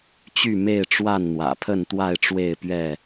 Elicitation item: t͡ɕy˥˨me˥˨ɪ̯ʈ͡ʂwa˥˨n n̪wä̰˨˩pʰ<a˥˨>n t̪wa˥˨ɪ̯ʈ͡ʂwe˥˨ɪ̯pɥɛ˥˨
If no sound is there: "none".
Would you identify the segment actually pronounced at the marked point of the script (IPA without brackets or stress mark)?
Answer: ə˥˨